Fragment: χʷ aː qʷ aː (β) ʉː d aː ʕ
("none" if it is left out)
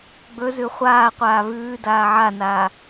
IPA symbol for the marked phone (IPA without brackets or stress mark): β